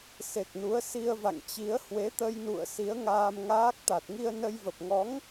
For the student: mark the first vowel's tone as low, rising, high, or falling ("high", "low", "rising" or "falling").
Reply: low